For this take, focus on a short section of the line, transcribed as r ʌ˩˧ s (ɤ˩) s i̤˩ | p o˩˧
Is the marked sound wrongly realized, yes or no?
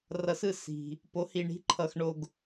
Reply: yes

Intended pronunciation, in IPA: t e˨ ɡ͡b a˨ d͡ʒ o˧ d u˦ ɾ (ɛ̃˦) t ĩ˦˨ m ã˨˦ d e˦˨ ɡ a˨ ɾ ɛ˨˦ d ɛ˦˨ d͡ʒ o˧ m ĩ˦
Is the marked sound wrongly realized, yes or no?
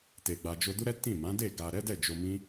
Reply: yes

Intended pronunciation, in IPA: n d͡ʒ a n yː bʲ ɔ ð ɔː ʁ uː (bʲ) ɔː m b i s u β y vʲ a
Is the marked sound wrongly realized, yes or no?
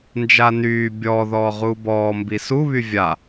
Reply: yes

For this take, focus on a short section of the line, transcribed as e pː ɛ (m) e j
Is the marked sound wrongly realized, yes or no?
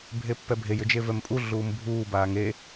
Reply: yes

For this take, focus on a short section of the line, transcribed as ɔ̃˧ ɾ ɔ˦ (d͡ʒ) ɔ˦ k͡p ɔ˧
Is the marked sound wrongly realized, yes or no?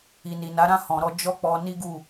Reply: no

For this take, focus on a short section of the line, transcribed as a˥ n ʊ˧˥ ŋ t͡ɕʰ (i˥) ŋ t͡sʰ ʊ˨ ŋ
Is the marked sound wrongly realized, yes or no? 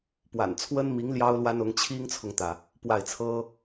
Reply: no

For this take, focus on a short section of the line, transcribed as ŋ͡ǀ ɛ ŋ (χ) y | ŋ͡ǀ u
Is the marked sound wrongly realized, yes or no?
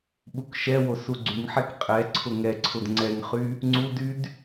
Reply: no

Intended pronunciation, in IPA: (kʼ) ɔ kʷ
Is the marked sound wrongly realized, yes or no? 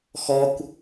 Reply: yes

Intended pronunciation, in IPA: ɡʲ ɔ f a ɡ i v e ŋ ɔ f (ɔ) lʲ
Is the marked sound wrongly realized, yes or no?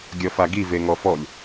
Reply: no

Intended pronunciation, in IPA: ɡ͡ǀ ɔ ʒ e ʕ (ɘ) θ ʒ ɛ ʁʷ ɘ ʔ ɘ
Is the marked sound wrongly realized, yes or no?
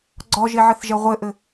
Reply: no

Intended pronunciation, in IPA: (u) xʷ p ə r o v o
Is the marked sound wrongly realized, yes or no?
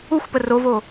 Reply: no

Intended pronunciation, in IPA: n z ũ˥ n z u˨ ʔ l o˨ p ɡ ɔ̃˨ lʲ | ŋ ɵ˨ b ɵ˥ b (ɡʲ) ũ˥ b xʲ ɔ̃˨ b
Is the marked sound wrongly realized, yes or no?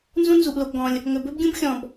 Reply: no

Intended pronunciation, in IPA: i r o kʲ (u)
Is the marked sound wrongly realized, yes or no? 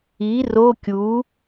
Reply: no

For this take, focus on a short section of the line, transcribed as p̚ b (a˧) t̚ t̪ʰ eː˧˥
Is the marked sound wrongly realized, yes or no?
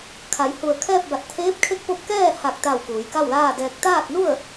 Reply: yes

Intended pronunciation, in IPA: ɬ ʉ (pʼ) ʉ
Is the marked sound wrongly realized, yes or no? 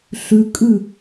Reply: yes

